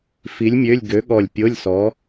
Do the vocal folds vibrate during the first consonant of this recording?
no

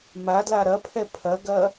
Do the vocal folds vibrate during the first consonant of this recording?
yes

